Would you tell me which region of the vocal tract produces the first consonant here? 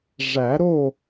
retroflex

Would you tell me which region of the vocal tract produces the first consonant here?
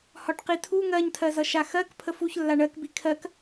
throat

